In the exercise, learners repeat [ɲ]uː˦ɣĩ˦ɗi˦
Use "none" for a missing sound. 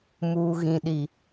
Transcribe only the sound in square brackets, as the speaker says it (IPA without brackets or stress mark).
m